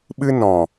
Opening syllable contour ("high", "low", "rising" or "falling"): high